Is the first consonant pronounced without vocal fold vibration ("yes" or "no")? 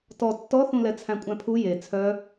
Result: yes